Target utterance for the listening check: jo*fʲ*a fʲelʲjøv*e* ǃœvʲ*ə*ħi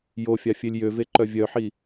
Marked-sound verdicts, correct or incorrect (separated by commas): correct, correct, incorrect